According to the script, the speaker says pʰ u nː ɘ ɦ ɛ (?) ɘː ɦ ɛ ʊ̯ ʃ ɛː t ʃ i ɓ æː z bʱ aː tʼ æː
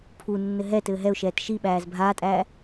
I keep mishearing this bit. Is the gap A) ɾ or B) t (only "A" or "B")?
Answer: B